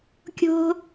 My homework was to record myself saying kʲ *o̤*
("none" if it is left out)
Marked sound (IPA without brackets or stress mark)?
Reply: o̤